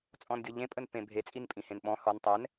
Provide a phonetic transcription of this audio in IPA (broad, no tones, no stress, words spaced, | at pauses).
t͡sʼɔ̃ndʲɔʎẽ pʼənpẽbʱe t͡sʼinpʼĩhẽnɓɔ̃ hɔn tˤɛn